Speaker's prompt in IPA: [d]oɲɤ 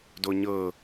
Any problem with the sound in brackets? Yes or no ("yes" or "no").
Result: no